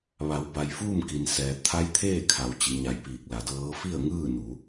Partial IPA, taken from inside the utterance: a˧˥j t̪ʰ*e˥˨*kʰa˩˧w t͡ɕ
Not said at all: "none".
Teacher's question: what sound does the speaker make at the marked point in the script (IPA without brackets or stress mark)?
eː˥˨